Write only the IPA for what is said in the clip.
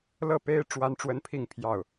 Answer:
lɤ˥˨ pe˦ɪ̯ ʈ͡ʂwa˦nʈ͡ʂwə˦npʰi˥˨ŋpʰjɑ˥˨ʊ̯

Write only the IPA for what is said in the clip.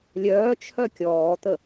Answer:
lʲœː t͡ʃʰœkʲɔːt̪ə

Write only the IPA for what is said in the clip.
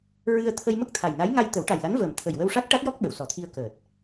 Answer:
ɹɨ˧ə̯t̪ʰə˧jmə˦˥k̚ t̪ʰa˨˩jna˧˥jŋa˧j t̪ə˨˩˦wʈa˨˩jla˧˥nvəː˨˩m t̪ʰə˨˩jwə˧w ʂa˦˥k̚ʈa˦˥t̚jɔ˦˥k̚ ɓə˨˩˨wsɔ˨˩˦t̪ʰi˧ə̯ kəː˨˩t̚

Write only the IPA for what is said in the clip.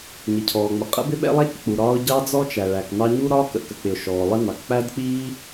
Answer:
ɲi˩cʰɔː˩ŋ͡mə˩ qʼə̰˥bɪ˥ɓɛ̰˥lˠæ˥c k͡pu˩ɾɒː˥ʊ̯ ɟɑ˥d͡zɔ˥t͡ʃæ˩ ɭæ˩knɑ˥ ɲu˥ɾɒː˥ kə̰˩kə˩k͡pɪ˩ʊ̯ ʃɔː˩lˠɪ˥nɑ˩k k͡pæ˥dk͡piː˥

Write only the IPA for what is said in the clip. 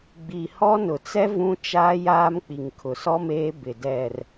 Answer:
ɡ͡bi˨hɔ˦ nʊ˨t͡sɛ˦ vũ˦t͡ʃaː˦jaː˦m k͡pi˨ŋkʰʊ˨sɔ˦ meː˦bɪ˨ dɛ˨r

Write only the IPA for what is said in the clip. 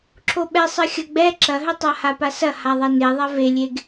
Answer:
ǁʰoɓɛsˤɘxʲɐ ɡ͡bɛ ǁɐɦɘtˤa hapasɐ haðˤɛneðˤɛ velʲeɡ

